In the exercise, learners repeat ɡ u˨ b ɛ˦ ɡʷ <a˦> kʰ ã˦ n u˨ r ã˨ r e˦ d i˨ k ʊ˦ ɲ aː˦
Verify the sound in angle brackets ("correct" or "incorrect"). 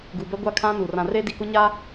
correct